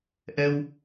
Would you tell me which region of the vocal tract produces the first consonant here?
throat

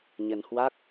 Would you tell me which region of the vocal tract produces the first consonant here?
palate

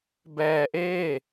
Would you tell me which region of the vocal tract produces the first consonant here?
lips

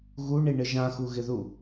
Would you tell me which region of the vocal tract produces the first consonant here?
velum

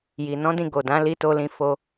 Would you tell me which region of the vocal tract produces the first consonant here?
palate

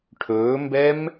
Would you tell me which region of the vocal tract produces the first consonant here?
retroflex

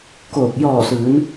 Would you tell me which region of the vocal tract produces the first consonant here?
velum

